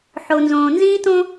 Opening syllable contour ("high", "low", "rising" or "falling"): low